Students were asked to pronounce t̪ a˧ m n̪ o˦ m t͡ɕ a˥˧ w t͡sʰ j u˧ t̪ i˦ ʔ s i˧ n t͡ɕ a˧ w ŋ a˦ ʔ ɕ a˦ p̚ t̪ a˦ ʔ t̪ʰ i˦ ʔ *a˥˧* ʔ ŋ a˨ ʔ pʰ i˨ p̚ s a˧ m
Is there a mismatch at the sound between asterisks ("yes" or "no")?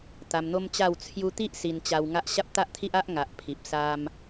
yes